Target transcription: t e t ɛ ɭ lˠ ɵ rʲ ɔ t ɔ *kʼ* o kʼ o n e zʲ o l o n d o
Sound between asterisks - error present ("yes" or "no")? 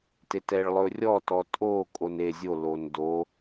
yes